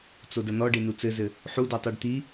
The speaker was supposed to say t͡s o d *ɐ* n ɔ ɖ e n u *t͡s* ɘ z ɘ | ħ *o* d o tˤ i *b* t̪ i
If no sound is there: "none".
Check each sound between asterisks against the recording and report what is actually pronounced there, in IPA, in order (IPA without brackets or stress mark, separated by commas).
ɐ, t͡s, u, ɖ